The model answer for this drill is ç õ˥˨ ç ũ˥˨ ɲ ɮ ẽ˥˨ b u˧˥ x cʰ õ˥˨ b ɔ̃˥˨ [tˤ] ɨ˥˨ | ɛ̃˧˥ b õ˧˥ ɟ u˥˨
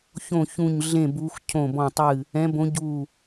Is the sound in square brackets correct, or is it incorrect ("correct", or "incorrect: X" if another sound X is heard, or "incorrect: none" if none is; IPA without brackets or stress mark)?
correct